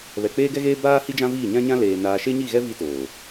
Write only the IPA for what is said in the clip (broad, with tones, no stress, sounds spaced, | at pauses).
β ɛ˨ k͡p eː˦ ɡ ɛ˦ ɣ eː˦ b aː˦ h i˦ d͡ʒ ã˦ v iː˦˨ ɲ ã˦ ɲ ã˦ l eː˨ n aː˨ ʃ e˦ ɲ i˦˨ ɣ ɛ˦ v i˦ t oː˨